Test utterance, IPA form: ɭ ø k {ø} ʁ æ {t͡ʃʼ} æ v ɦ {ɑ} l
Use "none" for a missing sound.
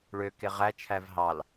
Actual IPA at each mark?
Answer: e, t͡ʃʰ, ɑ

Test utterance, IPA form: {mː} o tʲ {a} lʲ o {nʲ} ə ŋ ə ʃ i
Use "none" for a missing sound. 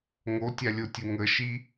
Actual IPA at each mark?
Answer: ŋ, a, tʲ

